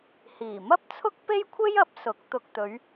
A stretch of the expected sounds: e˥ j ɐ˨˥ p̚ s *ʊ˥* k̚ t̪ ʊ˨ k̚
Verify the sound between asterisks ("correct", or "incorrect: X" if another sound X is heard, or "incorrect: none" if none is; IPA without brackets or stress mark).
incorrect: ʊ˨˥